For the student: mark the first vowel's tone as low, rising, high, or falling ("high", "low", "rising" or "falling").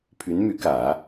rising